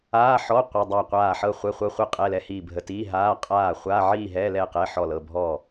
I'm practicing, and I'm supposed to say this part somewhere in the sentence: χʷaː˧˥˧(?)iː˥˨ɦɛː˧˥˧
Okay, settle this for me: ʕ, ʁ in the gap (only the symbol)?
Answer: ʕ